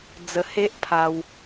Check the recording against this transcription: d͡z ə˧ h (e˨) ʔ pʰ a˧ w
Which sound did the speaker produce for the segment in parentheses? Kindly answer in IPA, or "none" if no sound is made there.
e˦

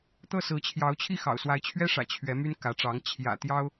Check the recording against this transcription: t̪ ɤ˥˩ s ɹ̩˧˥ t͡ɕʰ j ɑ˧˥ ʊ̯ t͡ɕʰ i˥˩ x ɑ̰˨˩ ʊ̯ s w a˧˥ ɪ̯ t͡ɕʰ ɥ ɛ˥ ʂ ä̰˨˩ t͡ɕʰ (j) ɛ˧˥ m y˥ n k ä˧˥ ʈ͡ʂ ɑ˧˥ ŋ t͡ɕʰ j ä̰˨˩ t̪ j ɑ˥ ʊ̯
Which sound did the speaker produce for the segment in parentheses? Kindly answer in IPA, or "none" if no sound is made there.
ɥ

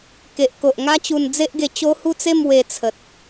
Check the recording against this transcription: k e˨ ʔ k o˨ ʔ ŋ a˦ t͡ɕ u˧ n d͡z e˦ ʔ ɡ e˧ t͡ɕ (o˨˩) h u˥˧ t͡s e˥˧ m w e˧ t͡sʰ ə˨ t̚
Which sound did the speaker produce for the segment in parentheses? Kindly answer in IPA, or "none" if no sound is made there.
o˦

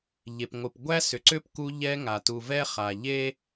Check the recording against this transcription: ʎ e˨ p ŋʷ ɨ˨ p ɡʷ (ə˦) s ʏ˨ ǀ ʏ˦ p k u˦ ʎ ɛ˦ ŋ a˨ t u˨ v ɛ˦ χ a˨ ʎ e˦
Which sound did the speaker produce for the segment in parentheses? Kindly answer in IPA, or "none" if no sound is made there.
æ˦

